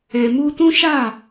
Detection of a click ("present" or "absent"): absent